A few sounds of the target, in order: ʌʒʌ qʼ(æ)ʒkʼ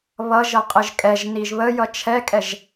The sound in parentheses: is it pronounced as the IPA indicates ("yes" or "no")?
no